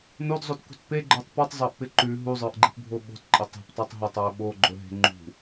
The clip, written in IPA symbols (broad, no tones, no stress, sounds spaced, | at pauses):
n o d zˤ o t k ṳ t p e ɡ͡ǃ ə˞ tˤ p u tˤ zˤ ə˞ ʔ p ɪ ǃ ʉ ɦ u zˤ ə˞ ʔ ɡ͡ǃ e̤ p bʱ o ɓ o̤ t ǃʼ ə tˤ e̤ p tˤ ə˞ tˤ ɦ ə tˤ ə˞ ɓ o ɡ͡ǃ ɵ ɦ e̤ ŋ͡ǃ ṳ